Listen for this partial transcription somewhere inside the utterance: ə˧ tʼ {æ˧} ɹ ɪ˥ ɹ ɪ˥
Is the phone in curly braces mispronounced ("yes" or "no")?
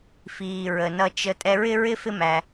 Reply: yes